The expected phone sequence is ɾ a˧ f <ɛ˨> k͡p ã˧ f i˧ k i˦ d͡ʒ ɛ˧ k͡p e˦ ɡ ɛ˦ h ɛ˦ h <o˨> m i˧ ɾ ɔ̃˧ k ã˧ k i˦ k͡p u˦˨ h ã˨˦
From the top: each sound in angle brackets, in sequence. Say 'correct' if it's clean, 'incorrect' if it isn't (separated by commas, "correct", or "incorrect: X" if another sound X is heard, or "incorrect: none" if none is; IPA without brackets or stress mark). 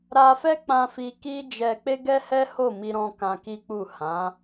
incorrect: ɛ˦, incorrect: o˦˨